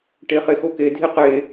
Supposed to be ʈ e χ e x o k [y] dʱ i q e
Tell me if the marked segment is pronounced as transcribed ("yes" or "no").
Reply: no